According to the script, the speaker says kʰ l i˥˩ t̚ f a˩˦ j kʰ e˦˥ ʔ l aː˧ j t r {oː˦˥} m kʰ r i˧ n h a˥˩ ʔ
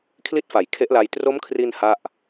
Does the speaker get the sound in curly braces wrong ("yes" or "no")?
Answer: yes